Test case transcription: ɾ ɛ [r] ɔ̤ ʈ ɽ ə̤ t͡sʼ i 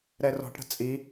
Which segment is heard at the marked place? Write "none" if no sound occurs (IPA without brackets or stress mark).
r